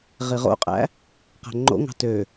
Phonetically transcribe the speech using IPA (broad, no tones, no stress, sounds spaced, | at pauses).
ʁ i ʁ o̰ qʼ æ̰ | q æ̤ ŋ͡ǃ o̰ ŋ ɑ̤ t ø